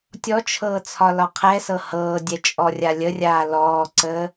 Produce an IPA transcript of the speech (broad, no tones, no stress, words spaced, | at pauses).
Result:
tʲɔt͡ʃʰɤː t͡sʰɒlɒqʰɛsɤ hɤːdʲɛ t͡ʃʼɔrʲalʲərʲaː lɔːǀəː